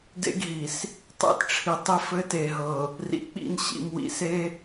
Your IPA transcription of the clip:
dḛ˦ɡɦi˨s | tˤḛ˦tʈ͡ʂʰi˨ tˤi˦ fɘ˦te˨ɦɤ˨ | rḭ˨k͡pḭ˦˨nɕḭ˨mwḭ˨ se˦

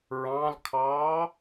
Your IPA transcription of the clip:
ɹɑ̃lkʰɑː

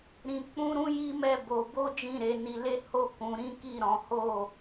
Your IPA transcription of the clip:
ɾĩ˧ k͡pũ˦ɾũ˦ji˦mɛ˦˨ bo˧ bo˦ d͡ʒĩ˦˨ɾe˨˦ ni˧le˦ho˦ kũ˧ɾĩ˦ ki˦˨ɾɔ̃˨˦ho˦˨

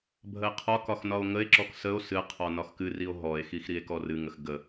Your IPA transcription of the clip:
bʱəe̯qʰɒkɒx nɒo̯ŋəe̯ǁɔk səo̯ sɨ qʰɔnɒxkɨrio̯ ɦɔe̯xix ɾie̯kɔrɨŋəx ɡə

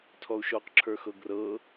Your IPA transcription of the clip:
tʰɔu̯ʃɔqǁʰə˞ xɤɡrɤ

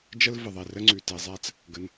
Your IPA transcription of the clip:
d͡ʒə˥l və˩ðˤe˩ rə˥ŋ͡ǀʉ˩te˩zˤæ˥t͡s | ɡə˩n

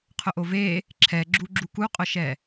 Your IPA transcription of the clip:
qʰʊʔove | ǁʰɛɡ͡ǁuɡ͡ǁu kuqʼʊʃɛ

